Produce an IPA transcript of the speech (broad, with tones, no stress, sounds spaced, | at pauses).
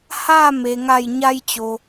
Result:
h a˥˨ m e˩ ŋ a˧˩ j ɲ a˧ j t͡ɕ o˩